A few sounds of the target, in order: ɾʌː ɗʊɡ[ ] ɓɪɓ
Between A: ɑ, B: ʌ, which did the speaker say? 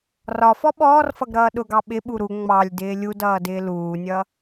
A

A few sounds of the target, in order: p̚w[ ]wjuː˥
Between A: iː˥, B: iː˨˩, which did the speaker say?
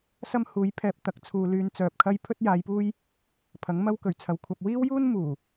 A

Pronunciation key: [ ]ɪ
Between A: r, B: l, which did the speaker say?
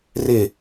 A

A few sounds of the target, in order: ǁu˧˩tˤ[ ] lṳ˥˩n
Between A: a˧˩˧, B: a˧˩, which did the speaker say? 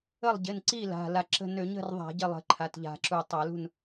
A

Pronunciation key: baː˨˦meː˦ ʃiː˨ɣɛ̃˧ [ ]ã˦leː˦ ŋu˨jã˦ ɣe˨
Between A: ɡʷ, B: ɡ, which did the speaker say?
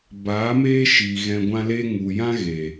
A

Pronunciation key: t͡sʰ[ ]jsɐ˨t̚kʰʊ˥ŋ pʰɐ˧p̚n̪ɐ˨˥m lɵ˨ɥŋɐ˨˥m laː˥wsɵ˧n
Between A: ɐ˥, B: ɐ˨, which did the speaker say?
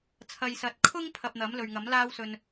B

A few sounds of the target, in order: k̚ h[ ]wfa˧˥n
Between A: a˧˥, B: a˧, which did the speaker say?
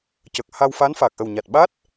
B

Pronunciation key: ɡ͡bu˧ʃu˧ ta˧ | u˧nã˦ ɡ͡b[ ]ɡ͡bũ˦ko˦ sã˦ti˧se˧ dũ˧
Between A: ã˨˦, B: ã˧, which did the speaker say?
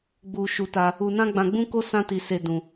B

